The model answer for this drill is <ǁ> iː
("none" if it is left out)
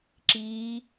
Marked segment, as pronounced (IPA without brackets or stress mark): ǁ